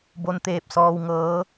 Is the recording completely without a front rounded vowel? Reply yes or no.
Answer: yes